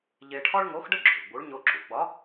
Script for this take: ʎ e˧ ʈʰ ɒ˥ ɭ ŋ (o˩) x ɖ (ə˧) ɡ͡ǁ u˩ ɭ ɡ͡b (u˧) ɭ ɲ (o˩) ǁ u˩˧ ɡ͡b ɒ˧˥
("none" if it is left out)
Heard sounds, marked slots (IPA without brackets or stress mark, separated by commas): o˧˥, ə˥, u˧˥, o˥